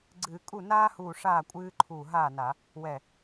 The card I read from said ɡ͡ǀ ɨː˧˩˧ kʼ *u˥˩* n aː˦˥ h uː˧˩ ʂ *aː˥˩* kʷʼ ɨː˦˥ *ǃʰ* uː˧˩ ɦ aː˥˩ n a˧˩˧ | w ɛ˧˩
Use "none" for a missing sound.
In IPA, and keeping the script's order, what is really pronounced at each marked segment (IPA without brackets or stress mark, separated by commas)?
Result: u˥˩, aː˥˩, ǃʰ